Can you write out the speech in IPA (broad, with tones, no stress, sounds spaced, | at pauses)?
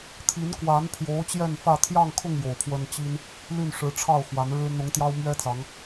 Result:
t̪ʰ i˨˦ n k w a˨˦ n pʰ j o˨˦ ʊ̯ t͡ɕ j ɛ˥˨ n f ä˥˨ t̪ʰ j ɑ˥˨ ŋ kʰ ʊ˥˨ ŋ j o˨˩ ʊ̯ pʰ w ə˦ n t͡ɕ i˦ n | l y˥˨ n ʂ ɻ̩˨˦ ʈ͡ʂʰ ɑ˥˨ ʊ̯ x w a˨˦ n ɻ ɻ̩˦ n̪ ʊ˨˦ ŋ t̪ j ɑ˦ ʊ̯ m ɥ ɛ˦ t͡s ɑ˨˦ ŋ